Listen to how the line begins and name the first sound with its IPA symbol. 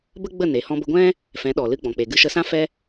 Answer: b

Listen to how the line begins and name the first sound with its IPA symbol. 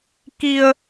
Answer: k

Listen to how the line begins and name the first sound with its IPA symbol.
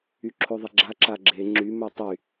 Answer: y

